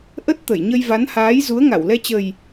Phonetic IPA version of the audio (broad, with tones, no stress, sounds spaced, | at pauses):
ʔ ə˦˥ t̚ t̪ ə˧˩ j ɲ ə˧ j v a˨˦ n h aː˨˦ j z u˨˦ ə̯ ŋ a˧˩ w l ɛ˧ t͡ɕ ə˨˩ j